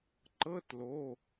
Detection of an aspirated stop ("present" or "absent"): absent